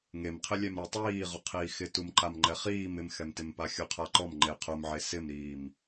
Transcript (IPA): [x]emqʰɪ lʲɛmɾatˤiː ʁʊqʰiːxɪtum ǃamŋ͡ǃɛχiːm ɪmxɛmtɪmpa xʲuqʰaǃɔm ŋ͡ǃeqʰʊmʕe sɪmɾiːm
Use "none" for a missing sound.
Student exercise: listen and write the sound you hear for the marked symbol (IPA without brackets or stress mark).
ŋ